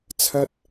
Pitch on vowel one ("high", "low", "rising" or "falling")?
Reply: high